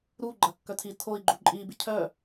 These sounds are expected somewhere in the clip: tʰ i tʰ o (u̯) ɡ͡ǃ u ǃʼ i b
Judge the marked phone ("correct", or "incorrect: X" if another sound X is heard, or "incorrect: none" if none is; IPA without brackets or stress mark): incorrect: i̯